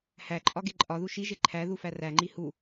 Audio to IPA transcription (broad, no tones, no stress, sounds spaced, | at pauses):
h æ ǃʼ ɒ ɡ e ǃʼ ɒ ð u ʃ i ʒ e ǃʰ æ ð u f æ r æ ŋ͡ǃ i h u